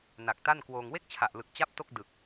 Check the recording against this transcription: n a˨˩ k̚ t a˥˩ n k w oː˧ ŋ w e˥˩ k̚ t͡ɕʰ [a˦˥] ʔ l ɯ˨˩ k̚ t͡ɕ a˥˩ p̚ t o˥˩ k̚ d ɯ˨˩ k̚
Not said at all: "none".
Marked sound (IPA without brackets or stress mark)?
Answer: a˨˩